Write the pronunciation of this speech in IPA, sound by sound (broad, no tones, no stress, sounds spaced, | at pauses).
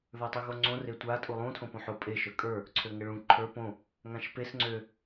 ð ə˞ tˤ u ɣ o ŋ͡ǀ õ r e tʷ a tʼ u lˠ ũ tʰ õ p õ ħ o pʼ e ʃ ə˞ kʼ ə˞ | ǀʰ ø ŋ ə ɭ ũ ǃʰ ə˞ p õ | ŋ ã ʃ p e s ŋ͡ǀ ø